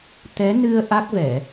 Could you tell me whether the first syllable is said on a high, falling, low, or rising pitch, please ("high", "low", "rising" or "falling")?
rising